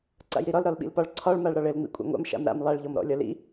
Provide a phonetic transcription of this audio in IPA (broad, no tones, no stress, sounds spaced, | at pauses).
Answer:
ǀ a̰ j ɾ i ɾ ɒ l ɾ ɒ l ɓ ḭ l p ɒ ɭ ǀʰ ɒ ɭ m a ɭ ɾ ɒ ɭ ɘ l ŋ͡m ḭ kʷʼ a̰ ŋʷ a̰ m ʃ a̰ m ɾ a̰ m lˠ a ɭ ʎ ɔ m ɾ ɔ̰ lʲ ɒ l ḭ